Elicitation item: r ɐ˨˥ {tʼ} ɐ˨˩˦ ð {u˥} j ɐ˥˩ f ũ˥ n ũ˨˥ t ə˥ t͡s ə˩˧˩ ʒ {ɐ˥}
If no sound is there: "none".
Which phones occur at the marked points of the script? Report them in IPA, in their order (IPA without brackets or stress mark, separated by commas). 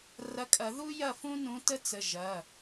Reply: kʼ, u˥, ɐ˩˧˩